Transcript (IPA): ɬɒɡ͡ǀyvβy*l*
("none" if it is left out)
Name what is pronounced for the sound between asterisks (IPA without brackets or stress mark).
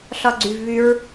ɹ